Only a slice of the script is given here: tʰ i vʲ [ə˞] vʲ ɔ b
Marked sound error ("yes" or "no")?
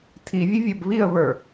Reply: yes